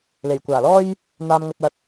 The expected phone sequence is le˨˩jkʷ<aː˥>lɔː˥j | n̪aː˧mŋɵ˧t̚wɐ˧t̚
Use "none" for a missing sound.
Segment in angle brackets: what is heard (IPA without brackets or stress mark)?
aː˨˩